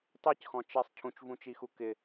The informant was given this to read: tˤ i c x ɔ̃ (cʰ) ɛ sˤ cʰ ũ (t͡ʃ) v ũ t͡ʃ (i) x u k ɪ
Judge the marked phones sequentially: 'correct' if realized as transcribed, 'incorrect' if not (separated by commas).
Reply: incorrect, correct, correct